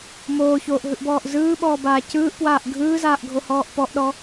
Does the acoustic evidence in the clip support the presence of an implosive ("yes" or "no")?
yes